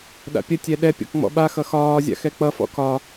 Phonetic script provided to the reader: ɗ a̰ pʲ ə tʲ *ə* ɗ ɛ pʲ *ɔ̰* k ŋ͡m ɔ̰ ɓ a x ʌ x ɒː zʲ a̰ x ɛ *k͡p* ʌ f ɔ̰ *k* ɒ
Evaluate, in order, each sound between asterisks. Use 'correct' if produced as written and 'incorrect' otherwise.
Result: incorrect: ɛ, correct, correct, correct

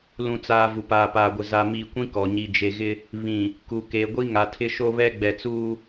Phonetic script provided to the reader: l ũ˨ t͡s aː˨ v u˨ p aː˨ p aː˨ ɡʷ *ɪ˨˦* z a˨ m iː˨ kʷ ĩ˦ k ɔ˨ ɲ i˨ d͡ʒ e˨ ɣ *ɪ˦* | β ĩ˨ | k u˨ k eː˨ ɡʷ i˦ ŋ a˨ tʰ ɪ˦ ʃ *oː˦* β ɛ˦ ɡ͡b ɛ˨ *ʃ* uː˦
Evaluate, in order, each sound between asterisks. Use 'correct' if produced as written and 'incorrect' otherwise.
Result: incorrect: ɪ˨, correct, incorrect: o˦, incorrect: t͡s

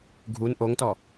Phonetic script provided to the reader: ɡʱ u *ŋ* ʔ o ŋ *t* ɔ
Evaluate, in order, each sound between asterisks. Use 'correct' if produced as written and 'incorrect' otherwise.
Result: incorrect: n, correct

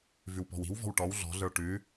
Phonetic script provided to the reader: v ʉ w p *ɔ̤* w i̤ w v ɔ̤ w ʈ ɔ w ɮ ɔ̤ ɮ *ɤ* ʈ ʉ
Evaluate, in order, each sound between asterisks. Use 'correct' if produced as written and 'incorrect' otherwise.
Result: correct, incorrect: ə˞

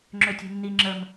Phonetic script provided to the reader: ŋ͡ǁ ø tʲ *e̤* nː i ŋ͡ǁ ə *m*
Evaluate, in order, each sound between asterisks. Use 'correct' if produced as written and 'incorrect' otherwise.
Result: correct, correct

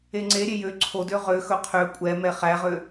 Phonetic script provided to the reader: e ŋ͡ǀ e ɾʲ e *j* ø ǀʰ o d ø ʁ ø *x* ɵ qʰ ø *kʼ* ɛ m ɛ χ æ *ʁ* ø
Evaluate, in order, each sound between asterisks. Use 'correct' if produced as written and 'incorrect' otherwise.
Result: correct, correct, incorrect: kʷʼ, correct

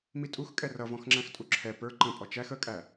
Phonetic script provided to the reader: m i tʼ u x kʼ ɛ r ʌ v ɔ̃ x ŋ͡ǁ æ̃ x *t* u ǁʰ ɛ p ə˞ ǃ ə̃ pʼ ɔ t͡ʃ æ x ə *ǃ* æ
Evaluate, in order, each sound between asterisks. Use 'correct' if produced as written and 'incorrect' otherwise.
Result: incorrect: tʼ, incorrect: kʼ

